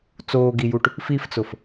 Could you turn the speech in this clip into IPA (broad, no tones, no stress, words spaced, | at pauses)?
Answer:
t͡soːɡijuʈ | fift͡sʊf